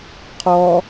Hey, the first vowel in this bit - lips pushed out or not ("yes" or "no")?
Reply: yes